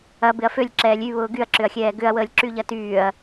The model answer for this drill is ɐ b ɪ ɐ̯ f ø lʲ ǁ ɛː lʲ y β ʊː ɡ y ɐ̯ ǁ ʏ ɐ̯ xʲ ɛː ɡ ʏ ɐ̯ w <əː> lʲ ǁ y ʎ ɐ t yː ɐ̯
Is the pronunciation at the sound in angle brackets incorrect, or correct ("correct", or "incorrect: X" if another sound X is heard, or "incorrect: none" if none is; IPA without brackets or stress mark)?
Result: correct